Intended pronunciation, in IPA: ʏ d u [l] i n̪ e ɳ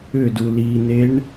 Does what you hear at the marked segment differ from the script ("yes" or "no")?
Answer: no